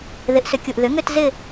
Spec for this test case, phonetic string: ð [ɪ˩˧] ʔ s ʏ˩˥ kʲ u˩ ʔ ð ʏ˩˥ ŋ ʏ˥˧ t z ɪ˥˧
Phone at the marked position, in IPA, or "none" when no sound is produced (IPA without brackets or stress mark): ɪ˩˥